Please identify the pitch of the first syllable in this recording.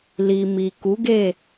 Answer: low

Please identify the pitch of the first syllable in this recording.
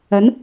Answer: rising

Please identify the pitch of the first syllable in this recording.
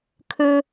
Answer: high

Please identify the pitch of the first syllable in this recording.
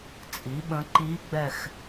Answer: rising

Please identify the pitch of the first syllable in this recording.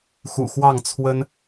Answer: low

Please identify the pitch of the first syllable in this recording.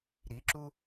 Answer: rising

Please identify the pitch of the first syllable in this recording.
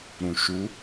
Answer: low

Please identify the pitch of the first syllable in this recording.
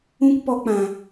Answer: high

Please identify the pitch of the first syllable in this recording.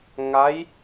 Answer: rising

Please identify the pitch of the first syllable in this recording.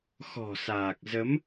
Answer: low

